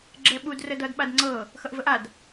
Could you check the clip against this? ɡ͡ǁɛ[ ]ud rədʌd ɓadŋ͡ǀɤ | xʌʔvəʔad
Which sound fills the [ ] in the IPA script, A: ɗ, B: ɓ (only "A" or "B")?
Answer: B